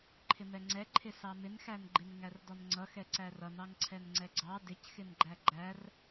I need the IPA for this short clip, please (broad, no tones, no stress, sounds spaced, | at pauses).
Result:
ǃʰ ɪ m ɛ ŋ͡ǀ ɛ ǃʰ ɪ s ɑ m ɪ n x æ n ɡ͡ǃ ɪ n ŋ æ r d ɔ n ŋ͡ǀ ʌ x ɛ ǀ æ r ʌ n ɑ ŋ ǀʰ ɛ n ŋ͡ǀ ɛ ɡ͡ǀ ɑ d ɪ c x ɪ n ɡ͡ǃ æ ɡ͡ǃ æ r